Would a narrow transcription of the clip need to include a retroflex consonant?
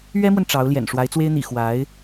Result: yes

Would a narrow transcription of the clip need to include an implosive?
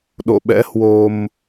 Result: yes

